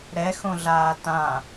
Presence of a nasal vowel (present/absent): present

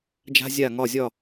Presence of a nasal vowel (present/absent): absent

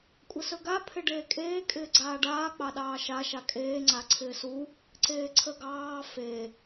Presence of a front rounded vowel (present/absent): absent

